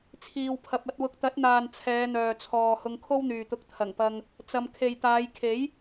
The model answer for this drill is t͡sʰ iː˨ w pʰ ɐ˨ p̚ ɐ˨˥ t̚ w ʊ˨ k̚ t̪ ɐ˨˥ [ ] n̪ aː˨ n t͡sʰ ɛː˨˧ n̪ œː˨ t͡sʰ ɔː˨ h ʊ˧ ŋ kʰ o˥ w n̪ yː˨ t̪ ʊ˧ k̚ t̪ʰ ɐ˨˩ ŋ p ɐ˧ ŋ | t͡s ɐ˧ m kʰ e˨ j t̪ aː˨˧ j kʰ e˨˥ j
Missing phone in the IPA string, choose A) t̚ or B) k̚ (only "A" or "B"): A